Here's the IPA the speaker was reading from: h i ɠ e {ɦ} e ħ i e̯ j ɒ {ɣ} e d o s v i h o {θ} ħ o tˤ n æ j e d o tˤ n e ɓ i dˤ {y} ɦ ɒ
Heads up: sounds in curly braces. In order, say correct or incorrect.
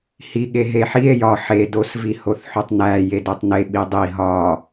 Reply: correct, incorrect, correct, incorrect

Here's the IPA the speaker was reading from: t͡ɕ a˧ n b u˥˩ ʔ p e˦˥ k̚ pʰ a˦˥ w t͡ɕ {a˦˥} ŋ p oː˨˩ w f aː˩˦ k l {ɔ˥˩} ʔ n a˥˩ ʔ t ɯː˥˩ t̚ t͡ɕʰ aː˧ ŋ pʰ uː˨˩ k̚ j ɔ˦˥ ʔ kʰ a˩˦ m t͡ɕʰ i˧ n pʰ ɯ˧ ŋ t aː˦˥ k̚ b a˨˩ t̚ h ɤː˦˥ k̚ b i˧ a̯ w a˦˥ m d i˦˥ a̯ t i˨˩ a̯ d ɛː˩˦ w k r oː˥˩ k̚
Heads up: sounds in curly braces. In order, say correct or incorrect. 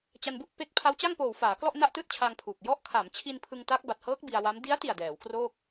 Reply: incorrect, correct

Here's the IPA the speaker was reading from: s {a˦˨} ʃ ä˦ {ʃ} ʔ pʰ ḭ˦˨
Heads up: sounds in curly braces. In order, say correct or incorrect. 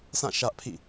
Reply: incorrect, incorrect

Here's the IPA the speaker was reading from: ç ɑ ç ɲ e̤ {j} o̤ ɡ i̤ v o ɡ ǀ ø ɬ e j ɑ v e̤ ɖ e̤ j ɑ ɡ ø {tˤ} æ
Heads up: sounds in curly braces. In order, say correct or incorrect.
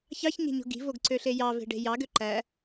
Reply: incorrect, incorrect

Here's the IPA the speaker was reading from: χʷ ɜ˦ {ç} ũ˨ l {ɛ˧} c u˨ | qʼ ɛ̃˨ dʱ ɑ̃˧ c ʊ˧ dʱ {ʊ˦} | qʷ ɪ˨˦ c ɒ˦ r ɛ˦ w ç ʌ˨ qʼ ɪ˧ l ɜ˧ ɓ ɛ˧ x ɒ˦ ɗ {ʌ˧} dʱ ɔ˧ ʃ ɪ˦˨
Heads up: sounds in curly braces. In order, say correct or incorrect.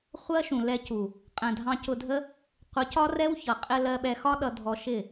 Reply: incorrect, correct, incorrect, correct

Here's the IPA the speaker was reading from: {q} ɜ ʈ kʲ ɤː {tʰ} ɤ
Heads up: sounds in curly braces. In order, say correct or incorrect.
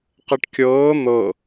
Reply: correct, incorrect

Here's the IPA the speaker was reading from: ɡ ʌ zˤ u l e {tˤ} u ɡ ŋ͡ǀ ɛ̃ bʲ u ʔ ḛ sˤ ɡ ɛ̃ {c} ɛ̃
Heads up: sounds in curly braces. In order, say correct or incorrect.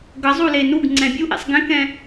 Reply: incorrect, incorrect

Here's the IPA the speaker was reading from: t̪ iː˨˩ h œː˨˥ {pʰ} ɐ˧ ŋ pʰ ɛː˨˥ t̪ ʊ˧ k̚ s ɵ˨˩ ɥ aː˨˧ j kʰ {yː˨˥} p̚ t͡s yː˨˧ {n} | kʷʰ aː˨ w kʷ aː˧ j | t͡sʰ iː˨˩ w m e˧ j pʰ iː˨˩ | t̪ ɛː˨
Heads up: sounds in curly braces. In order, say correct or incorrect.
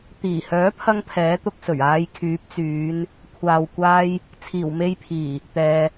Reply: correct, correct, correct

